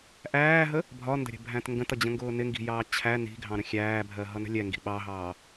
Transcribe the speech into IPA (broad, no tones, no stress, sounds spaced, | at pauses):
ʔ æː ɦ ə | bʱ ɒ n d ə̤ ɾʲ ə̤ bʱ æ̃ t ŋ ɡ ə̃ t ʌ d͡ʑ ə̃ ŋ ɡ ʊː n ɪ ŋ ɡ i̤ j ɑː t͡ɕʰ æ n i̤ ɡʱ ɑ̃ ɾ ə̃ xʲ æː bʱ ɜ ɦ ʌ n ə̤ lʲ ɛ ŋ ɡ i̤ ɓ ɑ ɦ ɑː